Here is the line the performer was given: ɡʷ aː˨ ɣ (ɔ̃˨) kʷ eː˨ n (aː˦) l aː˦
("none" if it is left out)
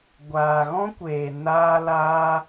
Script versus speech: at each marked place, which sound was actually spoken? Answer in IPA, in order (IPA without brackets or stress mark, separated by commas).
ɔ̃˦, aː˦